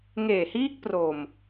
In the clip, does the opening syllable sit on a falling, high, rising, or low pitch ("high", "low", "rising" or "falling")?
low